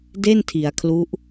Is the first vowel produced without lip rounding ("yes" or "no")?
yes